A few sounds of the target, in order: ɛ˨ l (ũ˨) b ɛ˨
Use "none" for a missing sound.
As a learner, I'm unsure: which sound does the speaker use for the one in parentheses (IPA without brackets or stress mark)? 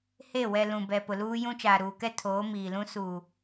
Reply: ũ˨